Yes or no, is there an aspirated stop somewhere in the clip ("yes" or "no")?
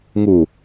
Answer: no